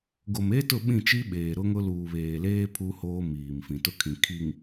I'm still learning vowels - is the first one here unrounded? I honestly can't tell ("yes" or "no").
no